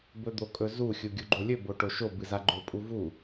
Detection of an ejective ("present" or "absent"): present